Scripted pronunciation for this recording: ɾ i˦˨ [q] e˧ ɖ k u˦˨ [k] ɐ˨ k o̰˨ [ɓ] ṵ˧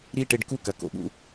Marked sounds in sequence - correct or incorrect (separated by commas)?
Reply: incorrect, correct, correct